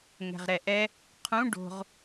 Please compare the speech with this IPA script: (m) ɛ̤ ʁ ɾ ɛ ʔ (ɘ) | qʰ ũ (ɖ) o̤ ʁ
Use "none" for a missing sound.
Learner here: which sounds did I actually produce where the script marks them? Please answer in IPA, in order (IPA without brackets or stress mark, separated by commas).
ŋ, ɛ, ɖ